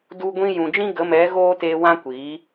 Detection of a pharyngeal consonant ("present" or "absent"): absent